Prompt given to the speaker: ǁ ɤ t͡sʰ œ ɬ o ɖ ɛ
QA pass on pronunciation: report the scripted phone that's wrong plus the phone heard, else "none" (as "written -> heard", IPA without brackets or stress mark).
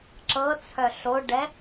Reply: none